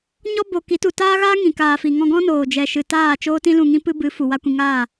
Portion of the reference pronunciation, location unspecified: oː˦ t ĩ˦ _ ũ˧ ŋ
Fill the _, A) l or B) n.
A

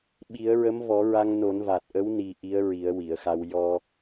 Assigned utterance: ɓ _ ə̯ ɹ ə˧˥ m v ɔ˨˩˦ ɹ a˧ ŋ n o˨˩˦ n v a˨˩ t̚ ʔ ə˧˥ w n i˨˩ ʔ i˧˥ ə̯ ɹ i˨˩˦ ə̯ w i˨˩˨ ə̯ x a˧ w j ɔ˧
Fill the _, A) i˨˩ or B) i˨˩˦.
B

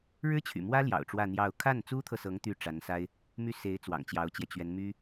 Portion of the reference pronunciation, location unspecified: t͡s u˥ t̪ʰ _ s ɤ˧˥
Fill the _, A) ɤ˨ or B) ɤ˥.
A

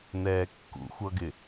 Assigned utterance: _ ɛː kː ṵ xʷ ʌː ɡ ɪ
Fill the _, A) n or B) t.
A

